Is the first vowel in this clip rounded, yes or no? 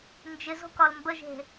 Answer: no